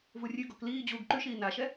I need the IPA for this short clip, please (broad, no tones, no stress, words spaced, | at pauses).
vurʲʉɡɔk liː d͡ʑuːɡǃʉʃiː naʃɛ